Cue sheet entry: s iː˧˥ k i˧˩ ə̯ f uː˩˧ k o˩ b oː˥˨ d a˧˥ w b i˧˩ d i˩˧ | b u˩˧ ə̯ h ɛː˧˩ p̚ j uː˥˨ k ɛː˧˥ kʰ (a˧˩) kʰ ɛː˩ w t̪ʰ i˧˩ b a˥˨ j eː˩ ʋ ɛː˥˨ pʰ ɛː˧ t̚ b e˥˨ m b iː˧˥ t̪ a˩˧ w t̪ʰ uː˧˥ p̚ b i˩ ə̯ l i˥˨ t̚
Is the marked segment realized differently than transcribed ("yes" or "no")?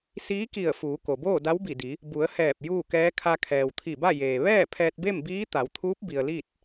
yes